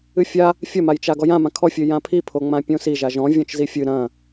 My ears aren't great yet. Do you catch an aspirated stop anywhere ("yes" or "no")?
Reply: yes